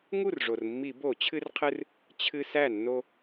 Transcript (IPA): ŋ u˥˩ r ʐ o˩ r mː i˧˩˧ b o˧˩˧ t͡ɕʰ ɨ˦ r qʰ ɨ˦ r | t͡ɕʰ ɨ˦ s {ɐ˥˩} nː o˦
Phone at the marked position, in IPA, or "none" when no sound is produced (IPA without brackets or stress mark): æ˥˩